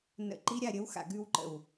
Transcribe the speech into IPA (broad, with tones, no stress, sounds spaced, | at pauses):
n ə̰˨ ǃ i˧ ɾʲ a˦˨ ɾʲ ə˨˦ w x a̰˨ ɡ ʉ˧ w ǃ ə̰˨ w